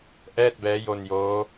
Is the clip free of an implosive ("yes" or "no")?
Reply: yes